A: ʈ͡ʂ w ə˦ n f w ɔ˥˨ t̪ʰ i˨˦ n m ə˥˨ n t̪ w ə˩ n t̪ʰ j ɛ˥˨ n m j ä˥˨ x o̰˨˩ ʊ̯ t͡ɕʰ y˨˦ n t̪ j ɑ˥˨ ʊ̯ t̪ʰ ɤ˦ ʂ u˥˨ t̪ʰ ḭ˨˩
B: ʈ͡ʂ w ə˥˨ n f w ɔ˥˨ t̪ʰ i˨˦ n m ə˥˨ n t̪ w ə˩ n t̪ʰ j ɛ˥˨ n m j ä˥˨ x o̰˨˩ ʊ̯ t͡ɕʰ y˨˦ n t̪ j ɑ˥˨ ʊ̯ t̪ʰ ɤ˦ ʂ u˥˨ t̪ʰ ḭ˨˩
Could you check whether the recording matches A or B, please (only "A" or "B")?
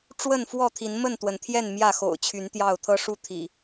B